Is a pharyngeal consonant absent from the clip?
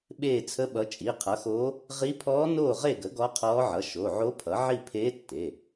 no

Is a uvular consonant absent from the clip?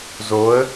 yes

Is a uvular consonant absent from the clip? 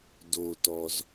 yes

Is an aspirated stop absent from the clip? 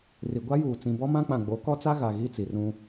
yes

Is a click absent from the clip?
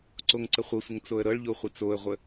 no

